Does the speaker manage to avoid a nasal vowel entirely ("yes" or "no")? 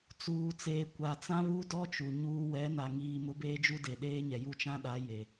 no